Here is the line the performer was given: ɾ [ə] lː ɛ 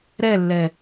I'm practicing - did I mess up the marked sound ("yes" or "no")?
yes